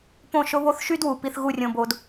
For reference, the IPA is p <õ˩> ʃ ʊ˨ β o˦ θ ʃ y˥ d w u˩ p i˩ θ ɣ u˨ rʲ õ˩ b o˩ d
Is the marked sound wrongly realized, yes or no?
yes